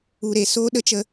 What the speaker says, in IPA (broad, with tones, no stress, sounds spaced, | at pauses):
u˨ ɾ e˨ s oː˦ ɗ ə˦ t͡ʃ ə˧